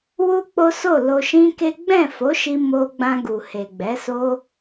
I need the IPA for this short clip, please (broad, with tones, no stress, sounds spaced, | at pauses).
w u˦ k͡p o˦ s o˦˨ l o˧ ʃ ĩ˦ k e˦ ɡ͡b ɛ̃˦˨ f o˨˦ ʃ i˧ m o˧ ɡ͡b ã˧ ɡ u˨ h e˨ ɡ͡b ɛ˨˦ s o˦